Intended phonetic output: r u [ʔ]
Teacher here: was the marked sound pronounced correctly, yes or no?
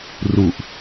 yes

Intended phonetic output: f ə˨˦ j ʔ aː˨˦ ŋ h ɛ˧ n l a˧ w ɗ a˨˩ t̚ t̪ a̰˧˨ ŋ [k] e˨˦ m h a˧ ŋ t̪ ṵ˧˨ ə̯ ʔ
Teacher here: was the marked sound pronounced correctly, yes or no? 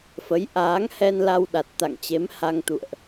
no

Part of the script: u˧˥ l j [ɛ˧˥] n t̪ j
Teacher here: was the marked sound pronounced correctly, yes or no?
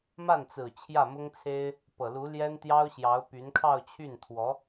no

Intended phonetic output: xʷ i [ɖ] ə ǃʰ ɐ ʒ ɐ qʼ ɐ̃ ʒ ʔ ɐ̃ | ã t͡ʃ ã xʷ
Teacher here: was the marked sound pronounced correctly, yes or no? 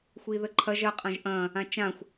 no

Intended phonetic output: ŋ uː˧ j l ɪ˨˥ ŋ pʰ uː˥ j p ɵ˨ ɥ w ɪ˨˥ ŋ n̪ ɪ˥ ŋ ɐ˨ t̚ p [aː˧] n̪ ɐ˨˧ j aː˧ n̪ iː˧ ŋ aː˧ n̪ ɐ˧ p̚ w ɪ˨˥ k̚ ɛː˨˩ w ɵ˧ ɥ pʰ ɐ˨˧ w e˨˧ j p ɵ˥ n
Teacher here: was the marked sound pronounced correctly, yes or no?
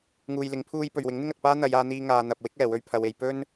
no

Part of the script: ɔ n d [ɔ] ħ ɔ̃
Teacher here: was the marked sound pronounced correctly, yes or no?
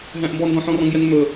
no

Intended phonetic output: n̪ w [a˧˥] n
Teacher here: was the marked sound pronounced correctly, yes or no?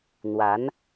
yes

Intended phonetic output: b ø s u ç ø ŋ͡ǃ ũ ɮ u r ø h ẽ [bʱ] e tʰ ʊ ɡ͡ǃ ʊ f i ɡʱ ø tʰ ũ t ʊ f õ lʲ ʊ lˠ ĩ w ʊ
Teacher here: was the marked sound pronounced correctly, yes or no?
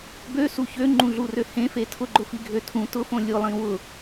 no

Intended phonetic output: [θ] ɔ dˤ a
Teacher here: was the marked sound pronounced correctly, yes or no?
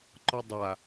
no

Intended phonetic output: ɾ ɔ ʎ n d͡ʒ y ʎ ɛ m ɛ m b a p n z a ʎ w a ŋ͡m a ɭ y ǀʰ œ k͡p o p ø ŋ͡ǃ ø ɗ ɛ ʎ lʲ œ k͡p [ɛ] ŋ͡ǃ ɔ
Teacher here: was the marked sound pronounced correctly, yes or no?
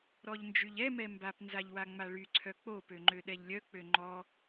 no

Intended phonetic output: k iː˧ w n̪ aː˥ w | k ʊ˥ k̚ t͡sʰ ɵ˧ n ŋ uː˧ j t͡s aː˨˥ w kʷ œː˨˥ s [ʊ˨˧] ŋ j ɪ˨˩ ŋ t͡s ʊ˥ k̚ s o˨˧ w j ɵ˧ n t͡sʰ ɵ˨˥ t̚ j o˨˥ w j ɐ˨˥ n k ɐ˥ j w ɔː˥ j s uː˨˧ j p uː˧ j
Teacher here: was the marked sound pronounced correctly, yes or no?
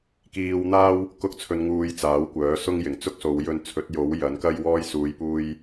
no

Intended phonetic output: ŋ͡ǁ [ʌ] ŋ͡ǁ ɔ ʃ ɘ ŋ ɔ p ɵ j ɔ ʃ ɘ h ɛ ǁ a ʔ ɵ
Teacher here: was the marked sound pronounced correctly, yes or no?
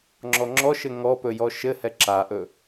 no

